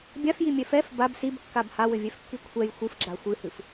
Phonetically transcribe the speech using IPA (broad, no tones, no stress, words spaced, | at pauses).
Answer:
bʲafjimʲɛ fɛf bab sibkːab hawɘvʲɛfkːi kʷʰɛj xʷɨfɡ͡ǁa xʷɨhɨf